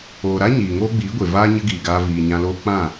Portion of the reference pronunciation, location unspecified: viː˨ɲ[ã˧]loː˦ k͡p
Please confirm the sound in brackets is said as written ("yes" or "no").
yes